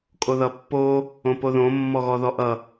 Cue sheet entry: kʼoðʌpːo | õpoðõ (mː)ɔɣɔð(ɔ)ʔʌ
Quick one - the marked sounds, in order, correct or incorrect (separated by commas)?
correct, correct